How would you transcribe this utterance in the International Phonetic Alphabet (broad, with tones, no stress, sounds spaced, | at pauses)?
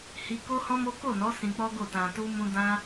h i˧ k o˦ h ɔ̃˦ m o˦ k o˦˨ n ɔ˨˦ s ĩ˧ k͡p ɔ˦ ɡ o˦˨ t ã˧ t u˦ m ũ˦ d ã˦